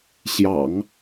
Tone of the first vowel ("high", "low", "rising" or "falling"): low